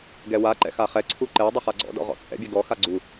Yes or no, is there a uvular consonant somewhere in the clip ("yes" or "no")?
yes